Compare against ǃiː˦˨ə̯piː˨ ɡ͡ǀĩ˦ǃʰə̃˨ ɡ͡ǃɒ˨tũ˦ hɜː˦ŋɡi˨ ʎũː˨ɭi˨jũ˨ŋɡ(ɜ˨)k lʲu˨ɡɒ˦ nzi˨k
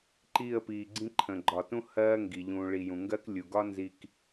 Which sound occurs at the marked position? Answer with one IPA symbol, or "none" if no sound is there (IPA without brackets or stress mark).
ɜ˦